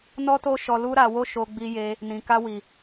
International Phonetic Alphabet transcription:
n ɔ˦ t o˦ ʃ ɔ˧ l u˦ ɾ a˧ w o˦ ʃ o˧ ɡ͡b i˧ j e˧ | n ĩ˨ k a˧ w i˨

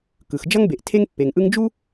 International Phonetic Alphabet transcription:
k ɯ˩ x d͡ʒ ʌ˧ ŋ b e˩ ʔ tʰ e˧ ŋ pː e˩ ŋ ʔ ɯ˧ ŋ d͡ʒ u˥

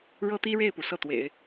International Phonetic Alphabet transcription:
ɻ ɤ˥ t̪ i˥ ɻ e˥˩ ɪ̯ p u˩ s ɤ˥˩ t̪ w ḛ˨˩˦ ɪ̯

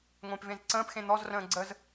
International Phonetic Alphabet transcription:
ŋʷ ẽ p v ẽ z ǀ ə̃ː p x ẽ n̪ ɔ z r ə̃ː ɡ͡ǀ ə z

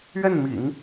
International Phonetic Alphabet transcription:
ɥ ɛ˥˩ n m ḭ˨˩˦ ŋ

